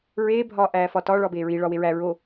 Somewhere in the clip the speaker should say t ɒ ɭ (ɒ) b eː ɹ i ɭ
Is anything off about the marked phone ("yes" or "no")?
no